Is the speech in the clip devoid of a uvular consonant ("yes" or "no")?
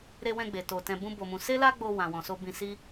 yes